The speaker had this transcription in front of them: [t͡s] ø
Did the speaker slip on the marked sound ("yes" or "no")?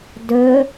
yes